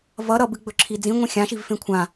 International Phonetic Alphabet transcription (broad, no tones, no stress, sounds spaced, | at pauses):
v ʌ ɾ ʌ b ɨ ɡ͡b ɵ ǁʰ i d͡z ĩ ŋʷ ĩ xʲ ã ʃ i v f ẽ kʷʰ ã